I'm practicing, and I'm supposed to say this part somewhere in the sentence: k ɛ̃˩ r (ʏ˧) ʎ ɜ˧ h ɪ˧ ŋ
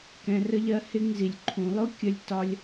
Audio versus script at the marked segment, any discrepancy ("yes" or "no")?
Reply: yes